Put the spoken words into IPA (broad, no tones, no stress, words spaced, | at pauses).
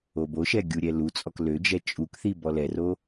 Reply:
oboʃɛ ɡʲuɾʲɛlut͡sʼɔk lød͡ʒɛ t͡ʃʼukθi bɔlɛro